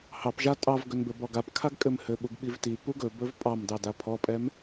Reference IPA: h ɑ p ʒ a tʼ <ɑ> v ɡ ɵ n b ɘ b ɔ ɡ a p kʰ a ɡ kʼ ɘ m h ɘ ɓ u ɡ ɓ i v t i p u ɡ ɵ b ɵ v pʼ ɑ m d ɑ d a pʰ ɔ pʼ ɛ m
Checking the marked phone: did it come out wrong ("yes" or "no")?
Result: no